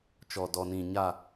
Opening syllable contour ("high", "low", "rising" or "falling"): low